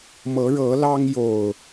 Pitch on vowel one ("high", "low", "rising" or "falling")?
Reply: rising